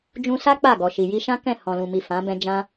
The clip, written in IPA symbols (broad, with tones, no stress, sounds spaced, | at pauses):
d͡ʒ ũ˧ s a˦ k͡p a˦˨ ɡ ɔ˨ ʃ i˨ j i˧ ʃ ã˦ k ɛ̃˦˨ h ɔ̃˨ l ũ˨ m i˨ f ã˨˦ b ɛ̃˦ d͡ʒ ã˦